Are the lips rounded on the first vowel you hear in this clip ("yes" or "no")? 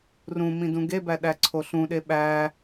yes